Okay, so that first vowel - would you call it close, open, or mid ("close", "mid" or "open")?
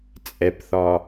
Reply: mid